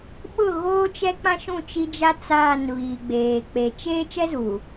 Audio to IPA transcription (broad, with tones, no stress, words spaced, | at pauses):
ɓʊ˦˨ɣoː˦t͡ʃɛ˦k͡pã˦ ʃũ˦˨t͡ʃi˦d͡ʒa˦ t͡saː˦˨n βiː˨ɡ͡beː˨ k͡pe˨t͡ʃeː˦ t͡ʃɛ˦zuː˨